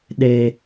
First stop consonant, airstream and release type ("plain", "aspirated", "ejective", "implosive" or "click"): implosive